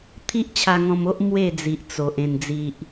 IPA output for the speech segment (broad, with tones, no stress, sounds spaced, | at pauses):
t̪ʰ i˦ ʔ t͡ɕʰ a˧ ŋ ɔ̃˧ m o˦ ʔ m w e˥˧ d͡z i˨ ʔ t͡s o˨ ʔ ẽ˨˩ n d͡z i˨ ʔ